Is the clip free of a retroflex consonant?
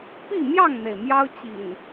yes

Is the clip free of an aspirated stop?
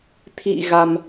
no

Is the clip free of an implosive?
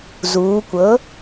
yes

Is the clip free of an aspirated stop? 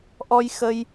yes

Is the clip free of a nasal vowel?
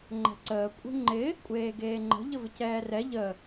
yes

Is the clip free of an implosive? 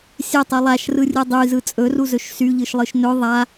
yes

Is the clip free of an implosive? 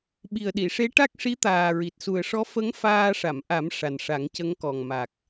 no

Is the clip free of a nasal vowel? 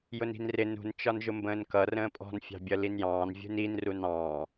no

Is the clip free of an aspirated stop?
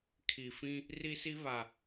no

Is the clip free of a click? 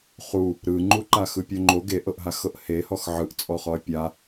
no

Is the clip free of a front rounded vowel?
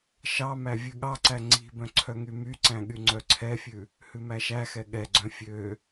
no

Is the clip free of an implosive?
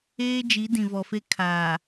yes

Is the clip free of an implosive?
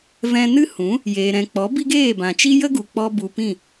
yes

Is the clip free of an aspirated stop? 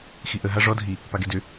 yes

